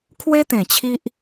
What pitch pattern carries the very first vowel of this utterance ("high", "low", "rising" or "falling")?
high